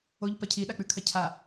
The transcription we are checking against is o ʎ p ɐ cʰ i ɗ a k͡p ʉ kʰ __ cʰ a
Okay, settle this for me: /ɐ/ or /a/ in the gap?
ɐ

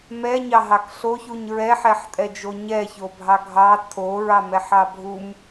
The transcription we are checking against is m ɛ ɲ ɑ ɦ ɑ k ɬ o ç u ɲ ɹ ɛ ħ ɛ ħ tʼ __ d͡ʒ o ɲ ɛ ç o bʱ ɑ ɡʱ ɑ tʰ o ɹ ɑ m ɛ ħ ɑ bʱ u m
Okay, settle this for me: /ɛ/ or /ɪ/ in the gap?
ɛ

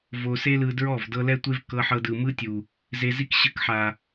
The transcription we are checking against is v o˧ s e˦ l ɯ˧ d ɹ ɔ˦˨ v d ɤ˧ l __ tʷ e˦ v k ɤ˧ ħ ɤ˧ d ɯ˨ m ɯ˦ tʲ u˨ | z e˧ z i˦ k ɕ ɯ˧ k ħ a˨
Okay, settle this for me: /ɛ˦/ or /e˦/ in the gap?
ɛ˦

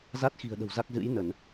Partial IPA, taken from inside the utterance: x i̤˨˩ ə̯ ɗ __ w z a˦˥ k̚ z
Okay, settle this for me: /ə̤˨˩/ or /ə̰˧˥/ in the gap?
ə̤˨˩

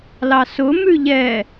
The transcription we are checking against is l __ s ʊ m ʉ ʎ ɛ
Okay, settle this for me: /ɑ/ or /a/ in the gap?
ɑ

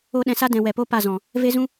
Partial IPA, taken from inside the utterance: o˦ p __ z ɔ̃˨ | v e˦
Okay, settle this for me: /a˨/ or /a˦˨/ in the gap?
a˦˨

